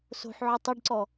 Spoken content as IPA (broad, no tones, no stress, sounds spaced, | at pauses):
s o̤ ħ ʕ ʊ tˤ ʊ ɖ ǀ ɔ